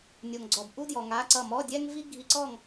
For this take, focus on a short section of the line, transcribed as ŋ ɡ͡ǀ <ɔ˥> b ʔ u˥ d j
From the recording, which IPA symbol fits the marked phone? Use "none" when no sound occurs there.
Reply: ɔ˨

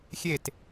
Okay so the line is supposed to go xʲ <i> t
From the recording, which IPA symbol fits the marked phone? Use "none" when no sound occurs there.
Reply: e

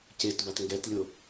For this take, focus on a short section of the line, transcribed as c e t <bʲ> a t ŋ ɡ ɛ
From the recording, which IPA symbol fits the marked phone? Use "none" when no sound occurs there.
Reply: b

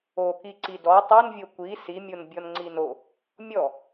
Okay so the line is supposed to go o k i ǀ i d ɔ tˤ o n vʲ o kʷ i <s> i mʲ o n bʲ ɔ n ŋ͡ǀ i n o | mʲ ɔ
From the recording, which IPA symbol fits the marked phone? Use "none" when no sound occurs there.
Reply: s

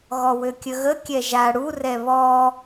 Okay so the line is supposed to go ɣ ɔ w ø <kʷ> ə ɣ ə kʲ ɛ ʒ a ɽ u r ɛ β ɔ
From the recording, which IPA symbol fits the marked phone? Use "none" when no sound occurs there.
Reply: kʲ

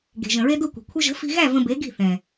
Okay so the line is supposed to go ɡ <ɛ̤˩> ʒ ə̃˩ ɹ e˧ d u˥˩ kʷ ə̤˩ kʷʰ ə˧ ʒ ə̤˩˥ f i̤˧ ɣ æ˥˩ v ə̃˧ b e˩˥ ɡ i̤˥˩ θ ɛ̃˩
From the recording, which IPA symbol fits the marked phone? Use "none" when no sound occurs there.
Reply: e̤˩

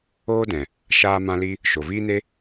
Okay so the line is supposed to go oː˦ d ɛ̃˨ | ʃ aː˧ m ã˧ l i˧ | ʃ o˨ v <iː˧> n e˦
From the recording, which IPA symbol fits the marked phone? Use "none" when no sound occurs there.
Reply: iː˦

